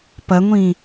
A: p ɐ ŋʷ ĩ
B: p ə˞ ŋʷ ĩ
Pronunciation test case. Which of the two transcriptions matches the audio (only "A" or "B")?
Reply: A